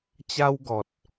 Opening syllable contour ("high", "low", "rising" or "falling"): high